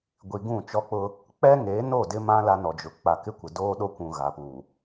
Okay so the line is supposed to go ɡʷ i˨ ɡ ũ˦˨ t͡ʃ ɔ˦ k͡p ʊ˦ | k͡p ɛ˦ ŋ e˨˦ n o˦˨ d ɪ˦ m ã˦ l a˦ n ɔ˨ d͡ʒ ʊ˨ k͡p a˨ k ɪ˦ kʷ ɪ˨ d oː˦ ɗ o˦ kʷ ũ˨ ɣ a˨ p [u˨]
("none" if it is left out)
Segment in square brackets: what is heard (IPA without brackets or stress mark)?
u˨